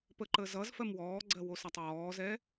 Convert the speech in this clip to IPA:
p ə ǃ əː z ʌ z f ɜ m w ɔː ɡ͡ǀ ɜ w o s a tˤ w ɔː z ɛ

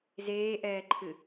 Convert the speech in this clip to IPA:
z eː ʔ ɛː ǃʰ ɨ

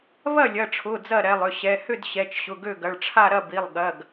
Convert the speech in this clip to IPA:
β ɐ˥˩ lʲ ɐ˩˧˩ ʈ͡ʂʰ ʊ˩˧˩ d͡z ɐ˥˩ ɾ ɛ˩˧˩ lˠ ʏ˩˧˩ ɕ ɛ˩˧˩ h ʏ˥˩ d ɕ ɛ˩˧˩ t͡ʃ ɕ ʊ˩˧˩ ɡ ø˥˩ ɡ ɐ˩˧˩ ɭ ʈ͡ʂʰ a˥˩ ɾ ɐ˥˩ b i˩˧˩ lˠ ɠ ɐ˩˧˩ ɡ

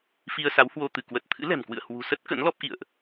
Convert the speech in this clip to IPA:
f i˧ ə̯ s a˨˦ w h w o˧ t̪ ɨ˧˩ k w ə˨˩ t̚ t̪ʰ ɨ̰˧˥ l ɛ̤˨˩ m k w ɨ̰˧˨ ə̯ h w ṳ˨˩ s ə˦˥ t̚ k ə̰˧˥ n l ɔ˦˥ p̚ ʔ ḭ˧˨ ə̯ ʔ

